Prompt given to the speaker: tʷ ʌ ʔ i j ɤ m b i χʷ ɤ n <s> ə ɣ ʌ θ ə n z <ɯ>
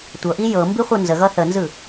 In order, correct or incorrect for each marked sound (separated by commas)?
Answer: incorrect, correct